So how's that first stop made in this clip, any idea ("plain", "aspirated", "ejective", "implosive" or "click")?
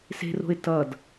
plain